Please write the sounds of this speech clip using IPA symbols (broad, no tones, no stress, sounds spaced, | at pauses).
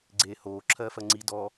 ɡ͡ǀ eː h oː ǁʰ ɜː f ɜ ŋ͡ǀ i d ɔ